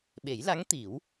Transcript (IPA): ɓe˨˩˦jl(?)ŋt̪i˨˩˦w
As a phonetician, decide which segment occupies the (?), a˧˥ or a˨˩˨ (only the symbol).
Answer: a˧˥